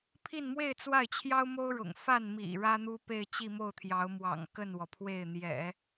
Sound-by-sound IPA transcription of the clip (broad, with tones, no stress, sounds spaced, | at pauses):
pʰ i˥˧ n m w e˥˧ ɪ̯ t͡s w a˥˩ ɪ̯ t͡ɕʰ j ɑ˥ ʊ̯ m o˥ ʊ̯ ɻ ʊ̰˨˩ ŋ f a˥˩ n m ḭ˨˩ ɻ ä˥ n̪ u˥ p e˥˧ ɪ̯ t͡ɕ i˥˧ m o˥˩ ʊ̯ t̪ʰ j ɑ˧˥ ʊ̯ m w ɑ̰˨˩ ŋ k ə˥˩ n w ɔ˩ pʰ w e˥˩ ɪ̯ n̪ j ɛ̰˨˩˦